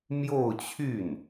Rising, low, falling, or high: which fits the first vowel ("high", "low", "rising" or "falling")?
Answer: falling